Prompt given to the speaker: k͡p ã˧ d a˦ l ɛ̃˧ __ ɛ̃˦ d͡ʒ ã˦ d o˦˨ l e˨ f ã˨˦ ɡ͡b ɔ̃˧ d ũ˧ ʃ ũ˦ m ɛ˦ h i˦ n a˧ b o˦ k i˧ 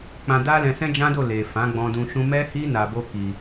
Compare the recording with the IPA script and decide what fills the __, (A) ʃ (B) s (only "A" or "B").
B